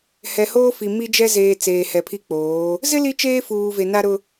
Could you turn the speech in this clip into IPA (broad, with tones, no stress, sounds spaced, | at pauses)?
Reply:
h ɛ˨ h oː˦ f i˨ m i˦ d͡ʒ ɛ˦ z eː˨ t͡s eː˨ h ɛ˨ pʰ i˦ k͡p oː˨˦ | z ɪ˦ l i˦ t͡ʃ eː˦ f uː˨ v e˨ n a˦ ɾ ʊ˦